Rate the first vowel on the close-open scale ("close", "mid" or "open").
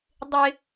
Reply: close